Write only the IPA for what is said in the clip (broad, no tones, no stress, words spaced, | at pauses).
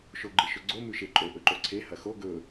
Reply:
ʃoɡ͡ǃɨʃɵɡ͡ǀo mʉʃeǃʼo ʔɵǃoǀʰe hɐxo ɡɵ